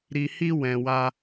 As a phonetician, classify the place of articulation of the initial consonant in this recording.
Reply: alveolar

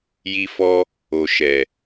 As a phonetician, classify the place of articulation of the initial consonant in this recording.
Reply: palatal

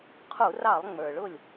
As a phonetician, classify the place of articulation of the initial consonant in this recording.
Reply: uvular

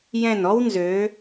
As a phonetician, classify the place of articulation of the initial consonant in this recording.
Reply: palatal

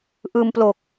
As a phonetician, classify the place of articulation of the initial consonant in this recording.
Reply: glottal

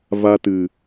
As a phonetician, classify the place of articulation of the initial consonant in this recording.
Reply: labial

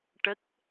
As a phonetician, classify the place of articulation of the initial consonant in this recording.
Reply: retroflex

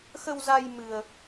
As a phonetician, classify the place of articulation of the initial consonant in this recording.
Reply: velar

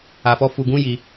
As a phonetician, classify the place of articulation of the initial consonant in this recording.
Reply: labial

